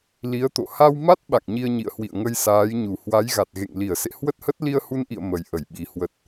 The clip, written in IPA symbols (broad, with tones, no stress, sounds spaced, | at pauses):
l i˨˦ ə̯ t̪ o̰˧˨ h a˧ w m a˦˥ t̚ ɓ a̰˧˨ ŋ ɲ i˧ ə̯ ɲ ḭ˧˨ ə̯ h w ḭ˧˨ ə̯ ŋ ə˧ j s aː˨˦ j ɲ u˧˩ h w a˨˦ j ɣ a˨˩ t̚ ɣ ḛ˧˨ ŋ l i˧˩ ə̯ s ḛ˧˨ h w ə˦˥ t̚ h ə˦˥ t̚ l i˧ ə̯ h u˧ n ʔ ḭ˧˨ ə̯ m ə˨˩ j ʔ ə˧˩ j ɓ i˨˩ h w ə˨˩ t̚